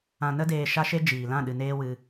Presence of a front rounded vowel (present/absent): absent